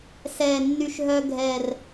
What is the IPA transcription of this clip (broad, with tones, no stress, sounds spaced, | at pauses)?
s ɛ˨˩ nː y˧ ʃ ɦ œ˧ ɡʱ ɛ˨˩ r